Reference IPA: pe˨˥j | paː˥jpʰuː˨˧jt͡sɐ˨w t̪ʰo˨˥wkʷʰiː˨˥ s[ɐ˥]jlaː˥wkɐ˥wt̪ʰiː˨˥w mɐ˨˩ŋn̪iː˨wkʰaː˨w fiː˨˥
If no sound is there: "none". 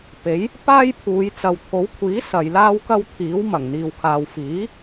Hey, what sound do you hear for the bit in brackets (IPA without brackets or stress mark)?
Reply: ɐ˨